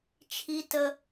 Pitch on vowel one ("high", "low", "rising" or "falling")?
high